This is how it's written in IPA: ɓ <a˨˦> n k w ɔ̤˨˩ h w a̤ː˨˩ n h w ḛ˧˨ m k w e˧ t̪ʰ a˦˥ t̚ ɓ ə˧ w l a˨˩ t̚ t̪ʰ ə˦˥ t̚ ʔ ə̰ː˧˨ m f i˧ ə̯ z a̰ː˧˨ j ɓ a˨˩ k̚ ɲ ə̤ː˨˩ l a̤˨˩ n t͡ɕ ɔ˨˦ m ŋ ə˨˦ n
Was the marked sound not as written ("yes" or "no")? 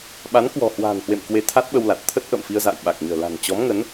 no